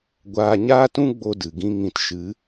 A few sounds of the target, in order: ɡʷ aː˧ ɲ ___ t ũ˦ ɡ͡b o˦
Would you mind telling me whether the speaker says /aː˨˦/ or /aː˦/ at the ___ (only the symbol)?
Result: aː˦